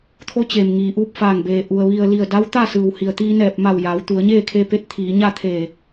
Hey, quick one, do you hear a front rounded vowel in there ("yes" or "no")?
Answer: no